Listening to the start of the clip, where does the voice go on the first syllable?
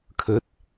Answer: rising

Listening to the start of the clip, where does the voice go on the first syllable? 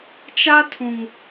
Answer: high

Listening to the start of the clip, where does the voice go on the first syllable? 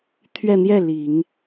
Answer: falling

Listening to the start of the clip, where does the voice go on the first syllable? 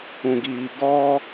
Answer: low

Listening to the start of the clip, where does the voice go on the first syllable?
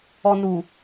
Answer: low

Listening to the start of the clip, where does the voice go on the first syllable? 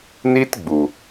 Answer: high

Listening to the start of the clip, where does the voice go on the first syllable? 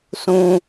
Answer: high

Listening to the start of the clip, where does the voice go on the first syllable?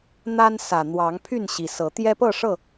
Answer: high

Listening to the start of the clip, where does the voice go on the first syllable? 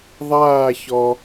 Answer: falling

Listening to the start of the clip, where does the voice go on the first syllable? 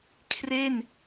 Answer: falling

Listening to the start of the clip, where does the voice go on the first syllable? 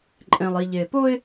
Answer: low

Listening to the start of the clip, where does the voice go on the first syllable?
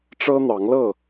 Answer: high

